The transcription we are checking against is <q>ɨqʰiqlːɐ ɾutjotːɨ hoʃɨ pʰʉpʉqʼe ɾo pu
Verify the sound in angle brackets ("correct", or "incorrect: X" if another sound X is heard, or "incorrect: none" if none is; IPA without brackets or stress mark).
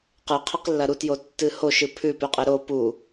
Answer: correct